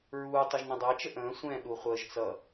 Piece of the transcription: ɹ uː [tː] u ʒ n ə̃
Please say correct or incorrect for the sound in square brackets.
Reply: incorrect